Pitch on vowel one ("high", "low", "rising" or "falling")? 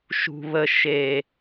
low